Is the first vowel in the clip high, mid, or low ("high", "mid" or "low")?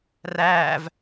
low